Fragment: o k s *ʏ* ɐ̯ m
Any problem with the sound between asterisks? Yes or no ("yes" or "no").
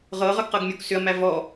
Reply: no